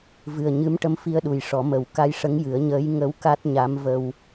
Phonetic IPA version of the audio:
v ɨ˨˩ ə̯ ɲ ɨ˧˥ m ʈ ə˧˥ m f i˧ ə̯ ɗ u˨˩ j ʂ ɔ˨˩˦ m ə˨˩ w k a˧ j ʂ ə˧˥ ŋ j ɨ˨˩˦ ə̯ ɲ əː˧˥ j ŋ ə˧˥ w k a˦˥ t̚ ɲ a˧˥ m v ə˧ w

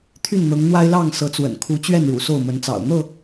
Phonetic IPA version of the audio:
t̪ʰ y˥˨ n n̪ ɤ˨˦ ŋ n̪ w a˦ ɪ̯ l ɑ˥˨ ŋ s ɤ˨˦ t͡s w ə̰˨˩ n kʰ u˨˦ t͡ɕ ɥ ɛ˥˨ n ɻ ṵ˨˩ s o˥˨ ʊ̯ m ə˨˦ n t͡s ɑ̰˨˩ ʊ̯ n̪ ɤ˥˨

